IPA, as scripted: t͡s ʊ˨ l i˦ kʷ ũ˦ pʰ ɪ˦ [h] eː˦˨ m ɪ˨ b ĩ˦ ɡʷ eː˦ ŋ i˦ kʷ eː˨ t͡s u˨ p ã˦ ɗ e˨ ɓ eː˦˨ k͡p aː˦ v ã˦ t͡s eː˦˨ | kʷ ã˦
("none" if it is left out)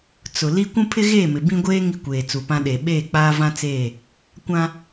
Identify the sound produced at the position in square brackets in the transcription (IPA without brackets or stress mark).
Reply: ɣ